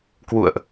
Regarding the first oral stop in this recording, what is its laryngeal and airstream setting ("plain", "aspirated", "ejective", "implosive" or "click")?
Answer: plain